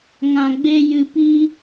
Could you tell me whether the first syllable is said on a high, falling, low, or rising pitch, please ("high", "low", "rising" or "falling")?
low